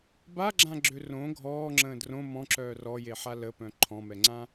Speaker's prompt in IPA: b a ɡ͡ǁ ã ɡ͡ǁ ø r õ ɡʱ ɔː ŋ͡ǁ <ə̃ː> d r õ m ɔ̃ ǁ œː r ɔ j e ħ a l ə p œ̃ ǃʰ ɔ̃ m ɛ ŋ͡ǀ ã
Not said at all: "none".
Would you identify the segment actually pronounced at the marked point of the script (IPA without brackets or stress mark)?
ə̃ː